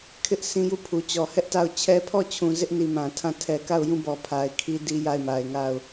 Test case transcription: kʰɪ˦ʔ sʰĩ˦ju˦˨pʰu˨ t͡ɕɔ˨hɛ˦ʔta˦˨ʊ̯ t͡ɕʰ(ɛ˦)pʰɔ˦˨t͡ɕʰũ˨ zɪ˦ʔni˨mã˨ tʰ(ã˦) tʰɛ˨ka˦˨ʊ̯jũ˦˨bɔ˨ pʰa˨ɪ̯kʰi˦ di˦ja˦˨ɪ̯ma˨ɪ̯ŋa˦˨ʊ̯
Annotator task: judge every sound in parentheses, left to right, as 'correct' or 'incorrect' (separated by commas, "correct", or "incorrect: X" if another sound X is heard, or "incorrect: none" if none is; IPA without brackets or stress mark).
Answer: correct, incorrect: ã˦˨